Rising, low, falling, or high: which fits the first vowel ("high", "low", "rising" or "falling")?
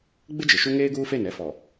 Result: high